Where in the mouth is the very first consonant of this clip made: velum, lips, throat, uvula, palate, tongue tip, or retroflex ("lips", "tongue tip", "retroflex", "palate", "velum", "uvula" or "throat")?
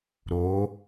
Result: tongue tip